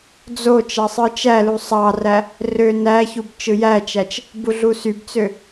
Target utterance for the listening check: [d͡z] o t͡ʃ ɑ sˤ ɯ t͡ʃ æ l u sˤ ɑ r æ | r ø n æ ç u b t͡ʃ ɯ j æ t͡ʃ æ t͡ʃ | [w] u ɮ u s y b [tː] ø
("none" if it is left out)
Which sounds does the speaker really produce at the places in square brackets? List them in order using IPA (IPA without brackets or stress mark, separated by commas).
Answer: d͡z, b, t͡s